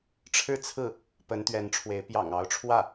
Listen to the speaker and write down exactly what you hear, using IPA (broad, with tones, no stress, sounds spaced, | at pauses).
ʈ͡ʂʰ ɻ̩˥˧ t͡sʰ ɹ̩˥˩ | p ə˧˥ n t̪ ɥ ɛ˧˥ n ʈ͡ʂʰ w e˧˥ ɪ̯ p j ɑ̰˨˩ ŋ ɑ˧˥ ʊ̯ ʈ͡ʂʰ w ä˥˩